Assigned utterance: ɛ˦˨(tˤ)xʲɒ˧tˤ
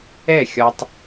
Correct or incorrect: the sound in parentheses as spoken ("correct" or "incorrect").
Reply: incorrect